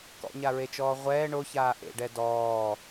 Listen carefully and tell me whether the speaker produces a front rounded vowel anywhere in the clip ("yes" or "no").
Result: no